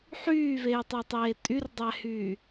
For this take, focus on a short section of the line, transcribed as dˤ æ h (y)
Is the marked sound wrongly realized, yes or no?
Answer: yes